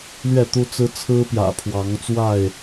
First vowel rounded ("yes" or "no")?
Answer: no